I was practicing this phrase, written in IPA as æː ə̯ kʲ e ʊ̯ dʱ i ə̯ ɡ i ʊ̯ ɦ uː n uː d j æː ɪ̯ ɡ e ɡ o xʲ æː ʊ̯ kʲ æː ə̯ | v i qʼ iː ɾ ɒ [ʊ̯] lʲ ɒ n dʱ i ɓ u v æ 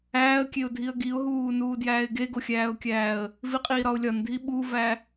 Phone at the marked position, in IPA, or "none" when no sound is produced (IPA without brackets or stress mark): ʊ̯